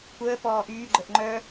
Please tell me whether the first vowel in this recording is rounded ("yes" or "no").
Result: no